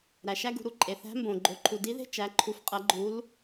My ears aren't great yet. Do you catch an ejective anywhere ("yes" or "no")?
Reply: yes